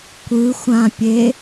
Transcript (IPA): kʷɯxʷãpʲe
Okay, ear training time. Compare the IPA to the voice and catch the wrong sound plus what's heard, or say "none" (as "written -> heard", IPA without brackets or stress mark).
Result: none